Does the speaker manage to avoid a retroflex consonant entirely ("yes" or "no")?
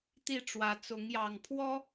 no